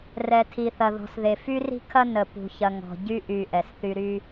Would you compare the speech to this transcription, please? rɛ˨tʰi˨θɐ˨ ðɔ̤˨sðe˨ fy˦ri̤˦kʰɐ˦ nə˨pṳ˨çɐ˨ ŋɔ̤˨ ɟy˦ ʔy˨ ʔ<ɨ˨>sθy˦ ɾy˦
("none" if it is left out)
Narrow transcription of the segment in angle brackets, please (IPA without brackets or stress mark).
ɛ˨